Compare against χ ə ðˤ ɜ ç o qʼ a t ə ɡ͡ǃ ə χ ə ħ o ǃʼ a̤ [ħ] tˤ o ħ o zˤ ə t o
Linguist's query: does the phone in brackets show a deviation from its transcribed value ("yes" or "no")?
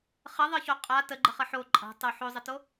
yes